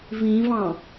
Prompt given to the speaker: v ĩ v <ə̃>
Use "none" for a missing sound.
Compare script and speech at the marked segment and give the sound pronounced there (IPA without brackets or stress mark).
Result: ɑ̃